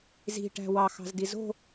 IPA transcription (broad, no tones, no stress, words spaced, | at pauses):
zi̤ʈæ̤ wɑxɑ̤zdi zo̤